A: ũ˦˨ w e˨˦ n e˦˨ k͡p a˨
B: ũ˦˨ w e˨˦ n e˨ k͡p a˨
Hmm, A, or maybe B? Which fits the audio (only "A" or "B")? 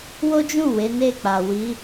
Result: A